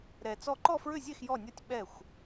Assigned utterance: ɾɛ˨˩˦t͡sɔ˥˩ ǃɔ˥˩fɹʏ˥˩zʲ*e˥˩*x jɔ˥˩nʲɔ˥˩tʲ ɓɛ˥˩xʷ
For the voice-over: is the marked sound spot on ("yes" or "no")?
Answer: yes